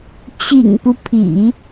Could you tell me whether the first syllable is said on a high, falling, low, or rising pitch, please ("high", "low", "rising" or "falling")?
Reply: low